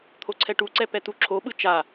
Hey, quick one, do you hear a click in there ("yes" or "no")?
yes